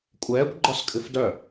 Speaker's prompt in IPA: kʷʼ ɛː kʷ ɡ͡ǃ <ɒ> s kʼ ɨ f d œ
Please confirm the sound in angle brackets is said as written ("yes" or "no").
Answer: yes